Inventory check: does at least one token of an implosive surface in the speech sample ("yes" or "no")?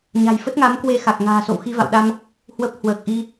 yes